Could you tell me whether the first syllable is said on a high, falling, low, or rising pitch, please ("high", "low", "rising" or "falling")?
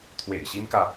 low